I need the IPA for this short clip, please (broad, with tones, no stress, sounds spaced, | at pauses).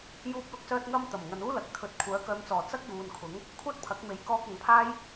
j uː˥ p̚ l ʊ˥ k̚ s œː˥ t̚ ŋ ɐ˥ m t̪ ɐ˨˩ m ŋ ɐ˨ n uː˥ l ɐ˨˥ k̚ t̪ʰ ɵ˨˥ t̚ kʷʰ œː˨˥ k œː˨˧ m t͡s ɔː˨˩ t͡s ɐ˥ k̚ j uː˨ n kʰ ʊ˨˥ ŋ | kʷʰ ɐ˥ t̚ pʰ ɐ˨˥ k̚ m e˨˥ j k ɔː˧ k̚ ɐ˨ ŋ pʰ aː˥ j